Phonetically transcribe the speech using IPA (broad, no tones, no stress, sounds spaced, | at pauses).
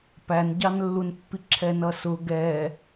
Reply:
p æ n ɟ ɑ n lː u n pː i ǁʰ ɛ n ʌ s ʊ ɡ ɛ